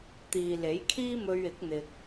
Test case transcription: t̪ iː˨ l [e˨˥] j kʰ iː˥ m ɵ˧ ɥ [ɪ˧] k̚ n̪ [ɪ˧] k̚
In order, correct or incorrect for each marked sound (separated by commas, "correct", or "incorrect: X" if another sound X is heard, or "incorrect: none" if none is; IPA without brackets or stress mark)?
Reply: correct, incorrect: ɪ˨˥, incorrect: ɪ˨